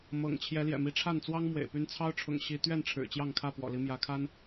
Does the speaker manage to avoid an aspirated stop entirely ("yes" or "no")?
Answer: no